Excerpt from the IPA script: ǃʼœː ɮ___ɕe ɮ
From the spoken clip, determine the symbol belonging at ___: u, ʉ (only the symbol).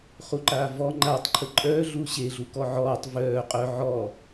u